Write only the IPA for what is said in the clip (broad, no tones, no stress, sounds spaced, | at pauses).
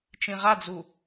t͡ʃ ĩ ʁ a d͡z u